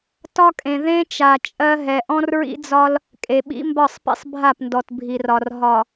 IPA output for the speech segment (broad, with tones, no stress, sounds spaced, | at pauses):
t ɒ˦ kʼ ẽ˨ ð ẽ˦ t͡ʃ a˨ t͡ʃʼ ɜ˦ ɦ ɛ˨ ʔ ɔ̃˦ r ɹ ḭ˦ d͡z ɒ˦ l | kʼ e˨ ɓ ḭ˦ m b ɒ˦˨ sˤ p ḭ˦ sˤ bʱ a˦˨ p n d ɔ˨ t bʱ i˨ r ɒ˨ r ɦ ɒ˨